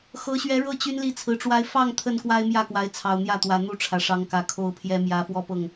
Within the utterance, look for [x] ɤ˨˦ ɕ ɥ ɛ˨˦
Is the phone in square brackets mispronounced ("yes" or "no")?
no